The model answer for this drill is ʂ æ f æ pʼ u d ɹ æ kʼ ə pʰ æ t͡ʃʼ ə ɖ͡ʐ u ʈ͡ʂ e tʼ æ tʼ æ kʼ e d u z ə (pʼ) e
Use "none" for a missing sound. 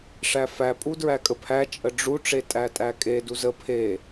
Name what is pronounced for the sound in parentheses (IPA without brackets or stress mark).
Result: pʰ